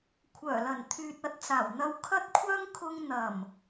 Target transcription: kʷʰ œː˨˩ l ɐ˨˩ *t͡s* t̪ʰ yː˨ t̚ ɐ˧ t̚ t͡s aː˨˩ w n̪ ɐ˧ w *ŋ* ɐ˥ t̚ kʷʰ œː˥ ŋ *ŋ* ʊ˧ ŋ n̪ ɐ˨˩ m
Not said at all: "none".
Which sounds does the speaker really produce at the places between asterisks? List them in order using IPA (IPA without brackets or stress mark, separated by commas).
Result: n, kʰ, kʰ